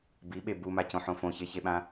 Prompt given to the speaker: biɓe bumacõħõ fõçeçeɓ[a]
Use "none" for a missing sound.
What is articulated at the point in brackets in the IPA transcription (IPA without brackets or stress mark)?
ã